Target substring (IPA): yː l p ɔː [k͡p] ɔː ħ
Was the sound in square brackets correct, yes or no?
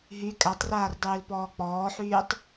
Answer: yes